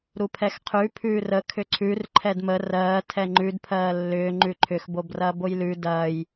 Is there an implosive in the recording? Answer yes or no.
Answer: no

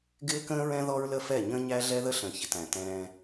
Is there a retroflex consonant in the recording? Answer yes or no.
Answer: no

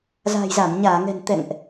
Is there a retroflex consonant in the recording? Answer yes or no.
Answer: no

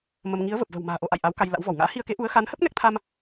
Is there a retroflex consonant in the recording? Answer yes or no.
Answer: no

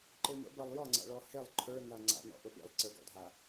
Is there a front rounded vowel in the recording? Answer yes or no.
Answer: no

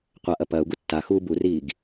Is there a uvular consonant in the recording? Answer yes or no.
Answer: yes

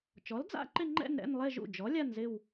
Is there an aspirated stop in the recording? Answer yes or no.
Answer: no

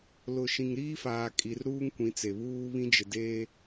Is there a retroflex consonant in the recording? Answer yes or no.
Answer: no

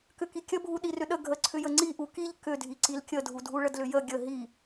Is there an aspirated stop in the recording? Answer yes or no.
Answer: yes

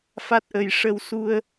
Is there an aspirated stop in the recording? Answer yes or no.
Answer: no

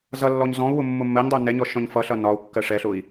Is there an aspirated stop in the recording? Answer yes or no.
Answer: no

